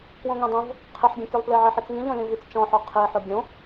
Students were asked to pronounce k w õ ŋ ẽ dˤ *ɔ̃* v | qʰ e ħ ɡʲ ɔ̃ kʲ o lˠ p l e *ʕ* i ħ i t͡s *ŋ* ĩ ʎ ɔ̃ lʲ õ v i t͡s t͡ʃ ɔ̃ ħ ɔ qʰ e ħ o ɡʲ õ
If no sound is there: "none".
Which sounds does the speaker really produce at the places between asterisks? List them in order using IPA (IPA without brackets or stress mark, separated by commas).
õ, ʕ, ŋ